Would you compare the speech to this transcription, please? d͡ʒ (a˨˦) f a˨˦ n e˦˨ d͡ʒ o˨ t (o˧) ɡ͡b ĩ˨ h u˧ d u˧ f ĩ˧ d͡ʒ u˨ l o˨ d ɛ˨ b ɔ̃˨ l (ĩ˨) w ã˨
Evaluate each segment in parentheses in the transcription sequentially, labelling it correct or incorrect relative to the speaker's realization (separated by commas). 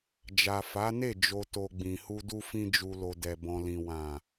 incorrect, incorrect, correct